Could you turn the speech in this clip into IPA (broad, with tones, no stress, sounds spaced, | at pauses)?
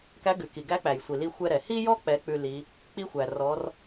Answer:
k æ˧˥ ɡ ʉ˩˧ k i˩ ɡ æ˧˥ k͡p æ˩ j sʷ i˩ l i˧ xʷ ɛ˧ ɾ ɛ˩ h i˥ j ɔ˥ k͡p ɛ˩˧ k͡p ʉ˧ l i˩˧ | k͡p i˥ xʷ æ˩ r ɔ˩˧ r